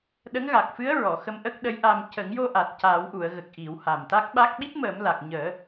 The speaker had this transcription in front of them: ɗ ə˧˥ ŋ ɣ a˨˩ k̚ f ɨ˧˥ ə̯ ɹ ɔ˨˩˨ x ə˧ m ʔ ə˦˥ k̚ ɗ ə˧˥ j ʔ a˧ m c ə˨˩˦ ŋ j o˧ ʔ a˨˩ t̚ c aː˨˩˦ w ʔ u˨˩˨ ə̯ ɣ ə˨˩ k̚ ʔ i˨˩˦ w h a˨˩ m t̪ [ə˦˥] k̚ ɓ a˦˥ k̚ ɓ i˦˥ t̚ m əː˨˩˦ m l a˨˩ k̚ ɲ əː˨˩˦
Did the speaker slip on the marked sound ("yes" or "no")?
yes